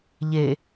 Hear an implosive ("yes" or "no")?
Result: no